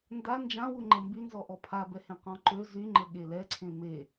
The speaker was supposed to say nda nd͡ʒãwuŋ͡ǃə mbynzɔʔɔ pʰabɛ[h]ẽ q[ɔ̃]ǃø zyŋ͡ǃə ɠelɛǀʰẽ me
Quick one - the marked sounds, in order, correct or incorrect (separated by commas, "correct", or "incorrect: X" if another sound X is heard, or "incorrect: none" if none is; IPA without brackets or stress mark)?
correct, correct